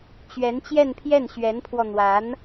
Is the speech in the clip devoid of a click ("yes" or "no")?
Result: yes